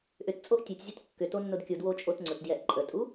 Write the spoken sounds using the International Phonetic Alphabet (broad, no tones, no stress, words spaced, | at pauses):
ʔʏtt͡sʼoʔ tʲɛtʲzʲʊt kːʏto nːʊdkʲudwo t͡ʃʼotŋ͡ǀʊtdjɛʔ ǃʼətʼu